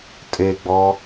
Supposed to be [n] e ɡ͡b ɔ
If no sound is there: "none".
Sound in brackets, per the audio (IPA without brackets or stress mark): tʼ